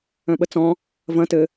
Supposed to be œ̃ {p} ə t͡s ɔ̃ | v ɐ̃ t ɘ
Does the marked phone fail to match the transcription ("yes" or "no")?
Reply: yes